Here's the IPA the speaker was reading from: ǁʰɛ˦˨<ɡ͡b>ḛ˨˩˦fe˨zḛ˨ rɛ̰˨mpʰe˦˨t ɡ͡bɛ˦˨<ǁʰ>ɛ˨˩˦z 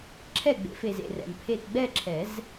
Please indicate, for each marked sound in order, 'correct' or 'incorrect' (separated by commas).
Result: correct, correct